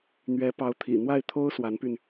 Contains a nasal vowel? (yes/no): no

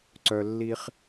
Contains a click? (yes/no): yes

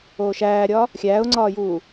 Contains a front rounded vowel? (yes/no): no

